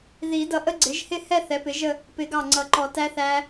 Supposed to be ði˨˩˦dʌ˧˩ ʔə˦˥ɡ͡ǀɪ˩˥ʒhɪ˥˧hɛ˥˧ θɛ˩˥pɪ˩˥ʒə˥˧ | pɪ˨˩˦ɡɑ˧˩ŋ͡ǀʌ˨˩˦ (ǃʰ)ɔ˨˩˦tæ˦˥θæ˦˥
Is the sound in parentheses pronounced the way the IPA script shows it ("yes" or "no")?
no